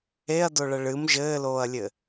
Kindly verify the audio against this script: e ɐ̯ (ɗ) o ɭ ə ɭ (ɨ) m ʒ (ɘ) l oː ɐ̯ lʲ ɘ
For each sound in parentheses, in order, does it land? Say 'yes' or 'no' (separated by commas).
no, yes, no